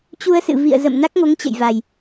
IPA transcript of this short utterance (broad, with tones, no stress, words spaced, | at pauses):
t͡ɕu˧ə̯sɨ̰˧˨ vḭ˧˨ə̯ zə̰˧˨m na˦˥k̚ŋo˨˦ŋt͡ɕə̰˧˨jva˨˩j